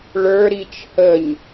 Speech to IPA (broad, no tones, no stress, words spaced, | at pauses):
ɭə˞ɾit͡ʃ həɲ